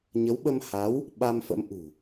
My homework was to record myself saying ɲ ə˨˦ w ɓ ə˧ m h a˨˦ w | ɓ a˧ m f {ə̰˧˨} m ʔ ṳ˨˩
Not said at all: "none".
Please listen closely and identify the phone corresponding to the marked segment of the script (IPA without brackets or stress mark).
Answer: ə̰˧˥